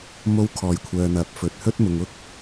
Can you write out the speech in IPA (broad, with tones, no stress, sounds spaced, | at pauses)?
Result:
m o˧ w kʰ ɔː˨˩ j kʷʰ œː˨ n̪ ɐ˨˥ p̚ f ɵ˨ t̚ h ɵ˥ t̚ m ʊ˨ ŋ ʊ˥ k̚